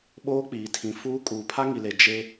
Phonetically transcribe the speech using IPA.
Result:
ɓ oː˦ k͡p iː˨ tʰ ĩ˨ f uː˦ kʼ uː˨ pʰ a˦ ŋ i˨ l e˨ d͡ʒ e˦

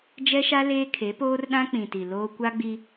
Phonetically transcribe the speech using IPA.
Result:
d͡ʒ ɛ˦ ʃ a˦ l eː˦ kʰ e˨˦ p oː˦ r ɗ ã˦ k͡p ĩ˨ t i˨ l oː˦ kʷ a˦ ɡ͡b i˦

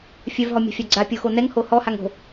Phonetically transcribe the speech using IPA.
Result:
fʲ œ v ɦ ɔ mʲ a̤ fʲ a ɡ͡ǀ a pʲ o x o n ɛ ŋ h o h ɔ h a ŋ o̤

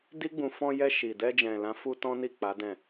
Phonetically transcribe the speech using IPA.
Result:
d i˦ ɡ͡b ũ˧ f ɔ̃˧ j ɛ˧ ʃ i˨ d ɛ˧ d͡ʒ ɛ̃˨ l ã˨˦ f u˦ t ɔ̃˦ n i˦˨ k͡p a˨˦ d ɛ̃˦˨

